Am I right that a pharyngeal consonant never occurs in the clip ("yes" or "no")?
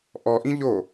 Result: yes